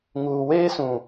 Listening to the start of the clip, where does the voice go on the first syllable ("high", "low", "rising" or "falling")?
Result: low